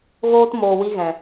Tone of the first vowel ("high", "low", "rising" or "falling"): high